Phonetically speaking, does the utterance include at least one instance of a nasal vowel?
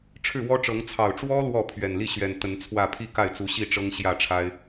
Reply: no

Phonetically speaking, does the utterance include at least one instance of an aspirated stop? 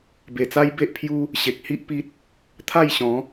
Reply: yes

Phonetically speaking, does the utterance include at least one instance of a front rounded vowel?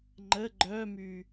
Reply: yes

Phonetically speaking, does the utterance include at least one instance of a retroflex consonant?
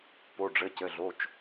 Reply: yes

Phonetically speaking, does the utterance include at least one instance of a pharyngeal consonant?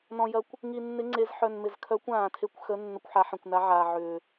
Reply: yes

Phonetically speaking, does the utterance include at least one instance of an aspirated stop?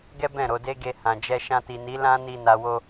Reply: no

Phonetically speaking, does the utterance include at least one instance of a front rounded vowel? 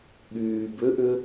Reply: yes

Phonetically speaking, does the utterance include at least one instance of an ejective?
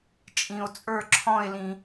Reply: yes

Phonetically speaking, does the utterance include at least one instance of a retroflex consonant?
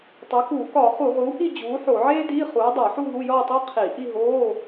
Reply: no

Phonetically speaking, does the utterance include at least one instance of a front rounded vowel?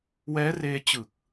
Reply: no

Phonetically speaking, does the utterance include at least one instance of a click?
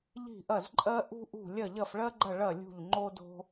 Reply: yes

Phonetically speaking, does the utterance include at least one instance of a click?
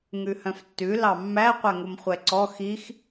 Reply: yes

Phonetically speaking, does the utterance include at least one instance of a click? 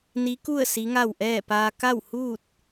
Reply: no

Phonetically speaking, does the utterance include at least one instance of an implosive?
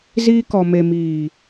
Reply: no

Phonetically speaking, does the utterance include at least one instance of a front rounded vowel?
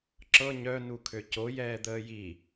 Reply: yes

